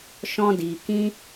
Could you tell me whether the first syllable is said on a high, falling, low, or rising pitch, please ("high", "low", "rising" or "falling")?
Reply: high